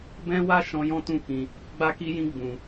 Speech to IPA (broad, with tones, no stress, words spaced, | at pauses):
bɛ̃˦wa˦ ʃɔ̃˦jɔ̃˦tũ˦˨ kĩ˧ | ɡ͡ba˦ki˦jĩ˦ ɡ͡bũ˧